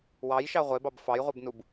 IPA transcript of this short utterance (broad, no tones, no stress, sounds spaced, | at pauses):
w ɑ j ʃ ɑ ʁʷ e b ɑ b f ɑ j ʁʷ e b n u b